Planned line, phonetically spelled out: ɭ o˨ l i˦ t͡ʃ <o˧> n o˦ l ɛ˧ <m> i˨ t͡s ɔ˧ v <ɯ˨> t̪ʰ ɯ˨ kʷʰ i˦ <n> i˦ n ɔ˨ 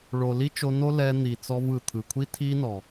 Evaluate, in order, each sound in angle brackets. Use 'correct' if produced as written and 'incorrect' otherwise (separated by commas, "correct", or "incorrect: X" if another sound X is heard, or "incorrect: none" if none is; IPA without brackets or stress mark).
correct, incorrect: n̪, correct, incorrect: tʰ